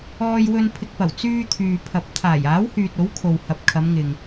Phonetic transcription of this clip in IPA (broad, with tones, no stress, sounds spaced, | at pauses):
ɔː˧ j w ɵ˧ n pʰ ɪ˧ k̚ p ɐ˨˩ w t͡s yː˧ t̪ʰ yː˨ pʰ ɐ˨˥ p̚ t̪ʰ aː˨˩ j aː˨˥ w h yː˨ t̚ o˨˥ w kʰ o˨ w h ɐ˨ p̚ kʰ ɐ˨˧ m ŋ ɪ˨ ŋ